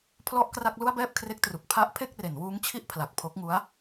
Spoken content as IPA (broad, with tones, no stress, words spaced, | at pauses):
pʰlɔ˥˩ʔkra˥˩k̚ lu˥˩a̯bɛː˥˩p̚kʰre˦˥k̚tru˨˩k̚ pʰa˦˥ʔ pʰe˥˩k̚re˩˦nwuː˦˥ŋt͡ɕʰi˥˩ʔ pʰla˨˩k̚pʰo˦˥k̚ŋu˦˥a̯